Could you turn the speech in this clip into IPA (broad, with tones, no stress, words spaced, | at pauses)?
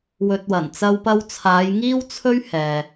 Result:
wɵ˧t̚wɐ˨˩n t͡sɐ˧wpɐ˧wt͡sʰaː˨˧j ŋiː˥wt͡sʰɵ˥ɥ hɛː˨